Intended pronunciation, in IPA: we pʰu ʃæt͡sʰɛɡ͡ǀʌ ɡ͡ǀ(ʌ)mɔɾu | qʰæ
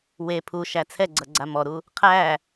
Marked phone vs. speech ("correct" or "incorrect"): incorrect